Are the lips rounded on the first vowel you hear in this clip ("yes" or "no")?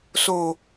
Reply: yes